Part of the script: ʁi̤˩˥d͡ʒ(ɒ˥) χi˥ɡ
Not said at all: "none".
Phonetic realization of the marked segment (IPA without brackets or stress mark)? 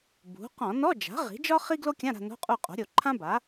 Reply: ɒ˥